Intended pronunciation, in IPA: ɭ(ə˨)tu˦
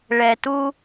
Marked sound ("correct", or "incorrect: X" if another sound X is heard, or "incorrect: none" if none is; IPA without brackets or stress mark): incorrect: ɛ˨